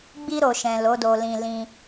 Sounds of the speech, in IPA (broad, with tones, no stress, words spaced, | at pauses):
ɡ͡bi˧ɾo˨ʃɛ̃˨ lo˨˦do˧lĩ˧ lĩ˧